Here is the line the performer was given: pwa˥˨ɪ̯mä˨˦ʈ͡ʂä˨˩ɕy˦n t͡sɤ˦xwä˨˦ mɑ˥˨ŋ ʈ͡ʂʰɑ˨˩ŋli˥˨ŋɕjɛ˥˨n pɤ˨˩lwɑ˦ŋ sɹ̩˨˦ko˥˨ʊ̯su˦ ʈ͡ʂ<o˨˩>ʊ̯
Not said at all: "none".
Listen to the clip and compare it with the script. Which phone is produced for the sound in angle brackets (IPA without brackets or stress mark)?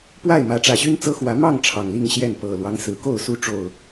o˨˩